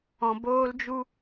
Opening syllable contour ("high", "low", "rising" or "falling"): low